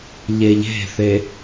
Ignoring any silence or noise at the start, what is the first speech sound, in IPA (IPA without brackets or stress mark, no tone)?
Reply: ʎ